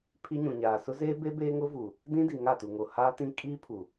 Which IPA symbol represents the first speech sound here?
pʰ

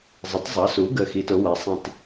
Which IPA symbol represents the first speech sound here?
zˤ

